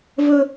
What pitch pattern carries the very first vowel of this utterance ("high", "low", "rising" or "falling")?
high